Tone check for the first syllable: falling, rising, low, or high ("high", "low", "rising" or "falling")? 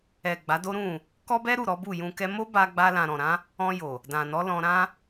low